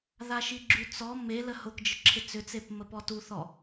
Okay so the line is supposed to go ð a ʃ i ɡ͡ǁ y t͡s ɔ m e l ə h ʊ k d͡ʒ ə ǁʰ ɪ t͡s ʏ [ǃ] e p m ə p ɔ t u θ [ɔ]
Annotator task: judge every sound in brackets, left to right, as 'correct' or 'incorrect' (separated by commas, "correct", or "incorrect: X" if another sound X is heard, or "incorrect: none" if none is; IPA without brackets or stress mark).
incorrect: t͡s, correct